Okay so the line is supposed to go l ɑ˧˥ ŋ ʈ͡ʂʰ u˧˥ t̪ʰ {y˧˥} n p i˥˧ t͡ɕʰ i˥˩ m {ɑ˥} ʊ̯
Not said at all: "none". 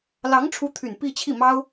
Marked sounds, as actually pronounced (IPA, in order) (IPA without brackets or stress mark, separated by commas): y˨˩, ɑ˥